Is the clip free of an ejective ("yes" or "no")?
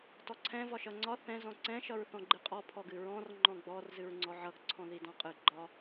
no